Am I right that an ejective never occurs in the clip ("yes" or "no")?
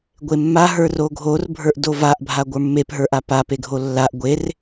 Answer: yes